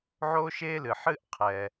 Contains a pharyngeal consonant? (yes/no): yes